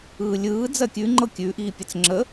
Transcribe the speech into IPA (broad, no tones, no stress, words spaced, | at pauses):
ɯːlʲɯː d͡zɜkʲʉ ŋ͡ǃɤkʲʉ ʔiːpʲət͡sŋ͡ǁə